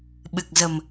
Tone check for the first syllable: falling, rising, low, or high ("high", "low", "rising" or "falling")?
low